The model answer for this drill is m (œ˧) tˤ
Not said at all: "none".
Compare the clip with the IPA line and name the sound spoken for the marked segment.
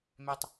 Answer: ɛ˧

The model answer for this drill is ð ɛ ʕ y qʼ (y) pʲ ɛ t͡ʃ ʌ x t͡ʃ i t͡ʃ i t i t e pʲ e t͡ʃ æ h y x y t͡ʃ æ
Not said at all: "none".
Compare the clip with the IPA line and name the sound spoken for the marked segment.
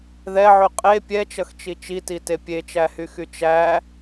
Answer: e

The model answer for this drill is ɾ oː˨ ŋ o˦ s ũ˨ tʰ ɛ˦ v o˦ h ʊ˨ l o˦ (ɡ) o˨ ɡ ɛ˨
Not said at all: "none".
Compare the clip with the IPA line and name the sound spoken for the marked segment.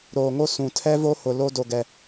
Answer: d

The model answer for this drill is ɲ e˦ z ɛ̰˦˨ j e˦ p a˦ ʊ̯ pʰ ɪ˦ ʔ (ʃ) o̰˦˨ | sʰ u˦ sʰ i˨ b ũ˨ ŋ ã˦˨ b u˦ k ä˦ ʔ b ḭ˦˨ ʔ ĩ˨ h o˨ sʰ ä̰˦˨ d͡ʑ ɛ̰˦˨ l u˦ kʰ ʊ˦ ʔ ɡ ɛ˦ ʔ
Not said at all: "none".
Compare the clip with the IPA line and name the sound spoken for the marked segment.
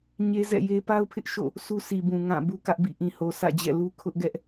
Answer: ʃ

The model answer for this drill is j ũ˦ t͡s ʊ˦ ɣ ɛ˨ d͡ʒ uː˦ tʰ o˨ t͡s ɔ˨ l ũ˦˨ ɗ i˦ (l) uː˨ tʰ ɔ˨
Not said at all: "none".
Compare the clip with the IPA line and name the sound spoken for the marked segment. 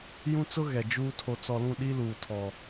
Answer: l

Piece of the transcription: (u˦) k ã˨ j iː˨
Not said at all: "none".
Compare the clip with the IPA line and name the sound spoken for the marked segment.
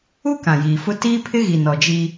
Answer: u˦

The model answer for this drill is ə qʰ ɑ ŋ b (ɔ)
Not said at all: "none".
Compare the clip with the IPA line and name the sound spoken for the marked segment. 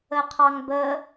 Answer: ə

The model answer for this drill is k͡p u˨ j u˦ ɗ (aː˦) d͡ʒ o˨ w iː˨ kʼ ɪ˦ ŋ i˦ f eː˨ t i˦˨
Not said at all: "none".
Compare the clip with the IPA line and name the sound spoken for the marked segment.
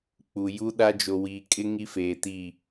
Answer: a˦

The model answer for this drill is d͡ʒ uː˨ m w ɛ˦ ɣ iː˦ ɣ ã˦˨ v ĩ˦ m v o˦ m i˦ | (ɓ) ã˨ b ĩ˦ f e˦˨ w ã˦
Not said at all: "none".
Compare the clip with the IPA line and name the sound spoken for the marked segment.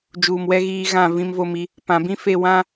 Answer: p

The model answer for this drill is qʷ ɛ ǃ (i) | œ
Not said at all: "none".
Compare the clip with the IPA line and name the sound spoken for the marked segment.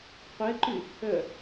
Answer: y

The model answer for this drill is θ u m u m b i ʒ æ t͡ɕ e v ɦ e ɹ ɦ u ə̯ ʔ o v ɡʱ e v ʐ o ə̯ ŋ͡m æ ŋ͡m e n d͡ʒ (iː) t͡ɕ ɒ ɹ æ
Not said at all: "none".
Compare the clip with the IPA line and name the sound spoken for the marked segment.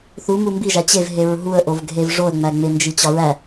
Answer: i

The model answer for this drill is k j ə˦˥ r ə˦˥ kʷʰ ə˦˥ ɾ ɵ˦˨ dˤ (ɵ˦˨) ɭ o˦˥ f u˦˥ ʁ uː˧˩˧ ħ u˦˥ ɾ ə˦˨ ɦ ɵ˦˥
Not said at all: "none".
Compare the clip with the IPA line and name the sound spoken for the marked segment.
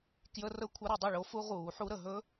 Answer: ɵ˦˨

